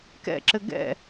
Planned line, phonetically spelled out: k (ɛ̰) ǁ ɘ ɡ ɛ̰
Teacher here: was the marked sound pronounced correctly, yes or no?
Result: yes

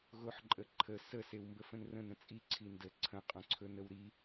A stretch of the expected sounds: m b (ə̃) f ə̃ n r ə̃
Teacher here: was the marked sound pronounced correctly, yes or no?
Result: no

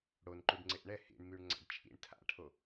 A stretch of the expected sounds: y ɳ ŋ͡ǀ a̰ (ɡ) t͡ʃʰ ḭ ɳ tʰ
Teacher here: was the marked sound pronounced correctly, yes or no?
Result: no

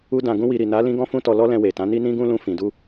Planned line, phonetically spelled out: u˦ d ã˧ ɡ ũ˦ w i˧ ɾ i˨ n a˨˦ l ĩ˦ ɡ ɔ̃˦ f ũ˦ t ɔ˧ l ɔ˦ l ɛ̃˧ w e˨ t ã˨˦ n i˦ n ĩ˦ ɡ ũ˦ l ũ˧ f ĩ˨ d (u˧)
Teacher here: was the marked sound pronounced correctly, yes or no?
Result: yes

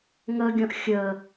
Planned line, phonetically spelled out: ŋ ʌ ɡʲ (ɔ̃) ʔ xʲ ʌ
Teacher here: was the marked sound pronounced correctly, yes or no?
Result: yes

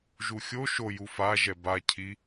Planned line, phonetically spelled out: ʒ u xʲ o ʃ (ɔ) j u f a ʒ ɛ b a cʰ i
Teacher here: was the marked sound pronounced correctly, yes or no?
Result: no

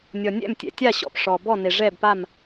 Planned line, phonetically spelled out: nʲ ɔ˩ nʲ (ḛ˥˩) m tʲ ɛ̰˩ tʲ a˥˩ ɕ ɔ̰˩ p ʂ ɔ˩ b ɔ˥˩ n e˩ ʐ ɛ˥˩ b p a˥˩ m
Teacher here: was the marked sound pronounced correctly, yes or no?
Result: no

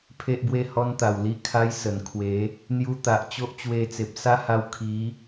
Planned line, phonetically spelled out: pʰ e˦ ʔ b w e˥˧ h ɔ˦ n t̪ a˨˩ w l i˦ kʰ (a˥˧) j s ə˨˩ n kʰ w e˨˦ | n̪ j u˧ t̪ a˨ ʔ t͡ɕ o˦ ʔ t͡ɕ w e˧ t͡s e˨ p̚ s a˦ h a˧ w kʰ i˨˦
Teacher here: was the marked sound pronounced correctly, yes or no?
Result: no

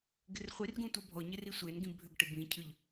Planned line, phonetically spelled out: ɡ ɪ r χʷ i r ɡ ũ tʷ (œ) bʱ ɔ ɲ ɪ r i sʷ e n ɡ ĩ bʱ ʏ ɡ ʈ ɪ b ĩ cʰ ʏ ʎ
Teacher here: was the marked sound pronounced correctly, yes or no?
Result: yes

